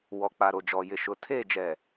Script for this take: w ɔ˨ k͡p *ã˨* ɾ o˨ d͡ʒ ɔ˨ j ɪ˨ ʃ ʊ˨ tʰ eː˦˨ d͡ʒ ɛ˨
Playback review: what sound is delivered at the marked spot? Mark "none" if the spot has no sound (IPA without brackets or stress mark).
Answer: a˨